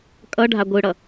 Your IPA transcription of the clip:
kʼ ʌ ɖʱ a ɡʷ ɯ ɽ ʌ

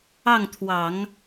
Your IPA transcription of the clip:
ɑ˥˩ ŋ t̪ʰ w ɑ˨˩˦ ŋ

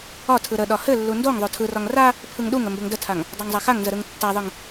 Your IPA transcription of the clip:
ɒ tʰ ɯ ɾ ə ɗ ɒ h ɘ lː u n d o ŋ ðˤ o tʰ ɯ r ɒ ŋ r a | pʰ ɯ ŋ ɗ u ŋ ə m b ɘ ŋ d ə tʰ a ŋ | dˤ a ŋ zˤ a x a ŋ n z ə ɾ ɯ ŋ tː a ðˤ ɯ ŋ

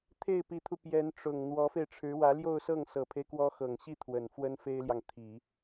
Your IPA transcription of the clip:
t̪ʰ e˥˩ ɪ̯ p i˧˥ t̪ʰ u˧ p j ɛ˧˥ n ʈ͡ʂ ʊ˨˩ ŋ n̪ w ɔ˧˥ f e˧ ɪ̯ ʈ͡ʂʰ ɻ̩˧˥ w ä˧˥ l j o˥˧ ʊ̯ s ɤ˥˩ ŋ s ɤ˨˩ pʰ e˦ ɪ̯ k w ɔ˧˥ x ɤ˨˩ ŋ ɕ i˥˩ t̪ʰ w ə˨˩ n f w ə˥ n f e˥ ɪ̯ l j ɑ˨ ŋ t̪ʰ i˨˩˦

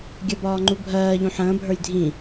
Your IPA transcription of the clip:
ɡʲ ɜ b ɒː ŋ͡ǃ u bʱ ɜː ʎ ũ ħ ə̃ː bʱ ə˞ j dʱ ĩ

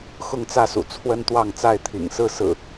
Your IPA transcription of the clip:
x ʊ˥˨ ŋ t͡s ä˥˨ s ṵ˨˩ t͡sʰ w ə˦ n t̪ w ɑ˥˨ ŋ t͡s a˥˨ ɪ̯ t̪ʰ ḭ˨˩ ŋ s ɹ̩˥˨ s ɹ̩˨˩

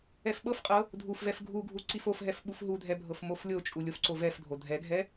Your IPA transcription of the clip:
ɛ f ɓ ɤ f qʼ ɤ | dʱ u f v ɛ f ɡʱ u ɡʱ u ǀ i f o f ɦ ɛ f ɓ u f ɦ u dʱ ɛ bʱ ɤ f m o f lʲ o t͡ʃʼ u lʲ o f ǀ o v ɛ f dʱ o dʱ ɛ ɡʱ ɛ

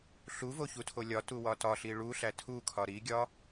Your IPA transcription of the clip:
ɬ u v o ç u tʰ o lʲ ɒ t u w ɒ t ɒ ɬ i ɭ u ɬ æ tʰ u kʰ ɒ ɾ i ɡʲ ɒ

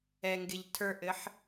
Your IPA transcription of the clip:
ɛ ŋ ɡ ɪ ʎ tʰ ə˞ ʔ ɘ ħ

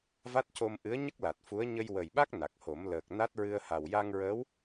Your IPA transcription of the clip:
v a˦˥ t̚ c o˧ m ʔ ɨ˧˥ ə̯ ɲ ə˦˥ k̚ l a˨˩ t̚ f u˧˥ ə̯ ɲ ə˧ j w ə˨˩ j ɓ a˦˥ k̚ n a˨˩ k̚ h o˨˩˦ m l əː˨˩ k̚ n a˦˥ t̚ ɹ ɨ˧ ə̯ h a˨˩ w j a˧ ŋ ɹ əː˧˥ w

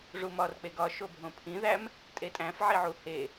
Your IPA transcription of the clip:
ʐ u m ɒ r k͡p e ɡ ɒ ʃ o bʱ õ pʰ ĩ ð æ m | tʼ e tʼ æ̃ f ʕ i ʕ u h e

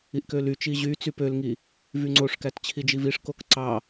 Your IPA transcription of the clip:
i ʔ k ø l y t͡ʃ i ʑ y t͡s y p ø l ŋ i | v y ŋ͡ǀ o ʂ k æ t t͡ɕʰ i d͡ʒ i v i ʂ k o k ǀ ɑ

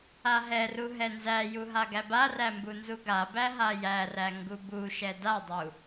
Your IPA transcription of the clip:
a ɦ ɛ r u ɦ ɛ n z æ j u ɦ a ɡ æ b a r æ m b u n z u ɡ a b æ ɦ a j æ r æ ŋ ɡ u b u ʃ ɛ d a dˤ u

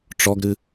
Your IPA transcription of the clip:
ʈ͡ʂ ɔ ɡ ɾ ɨ

